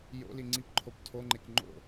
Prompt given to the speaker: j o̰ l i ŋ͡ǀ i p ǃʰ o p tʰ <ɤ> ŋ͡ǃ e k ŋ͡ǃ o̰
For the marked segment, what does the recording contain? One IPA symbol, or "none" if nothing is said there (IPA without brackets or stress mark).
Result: o